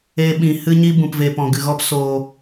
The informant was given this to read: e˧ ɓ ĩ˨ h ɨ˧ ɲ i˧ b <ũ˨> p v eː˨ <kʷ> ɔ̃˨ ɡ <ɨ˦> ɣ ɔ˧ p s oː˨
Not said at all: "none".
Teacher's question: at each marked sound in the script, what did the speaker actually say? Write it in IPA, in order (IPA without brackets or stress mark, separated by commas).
ũ˨, p, ɨ˨